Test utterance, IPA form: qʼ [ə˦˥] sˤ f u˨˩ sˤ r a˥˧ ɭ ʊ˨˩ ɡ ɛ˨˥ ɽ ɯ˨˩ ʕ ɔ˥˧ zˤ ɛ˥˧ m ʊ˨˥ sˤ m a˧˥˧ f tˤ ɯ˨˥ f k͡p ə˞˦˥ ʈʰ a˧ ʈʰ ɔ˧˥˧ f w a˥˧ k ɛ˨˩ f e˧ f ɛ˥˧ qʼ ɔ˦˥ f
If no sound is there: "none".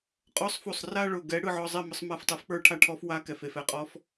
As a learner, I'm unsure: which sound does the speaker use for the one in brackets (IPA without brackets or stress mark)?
ɔ˦˥